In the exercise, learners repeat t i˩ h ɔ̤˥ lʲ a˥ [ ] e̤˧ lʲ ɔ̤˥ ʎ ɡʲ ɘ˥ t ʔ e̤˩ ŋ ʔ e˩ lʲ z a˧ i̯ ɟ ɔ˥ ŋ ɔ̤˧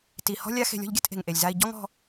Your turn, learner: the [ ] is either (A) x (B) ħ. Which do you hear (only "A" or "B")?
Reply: A